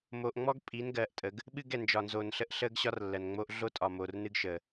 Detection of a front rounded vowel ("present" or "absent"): absent